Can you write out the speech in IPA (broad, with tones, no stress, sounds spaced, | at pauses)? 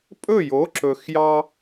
pʼ ɵ˥˩ j o˩˥ ǁ ɵ˩ x j ɑ˧